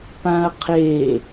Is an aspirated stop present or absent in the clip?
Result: present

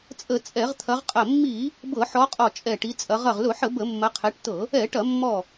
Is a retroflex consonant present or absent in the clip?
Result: present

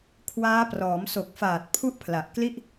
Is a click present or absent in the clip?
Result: absent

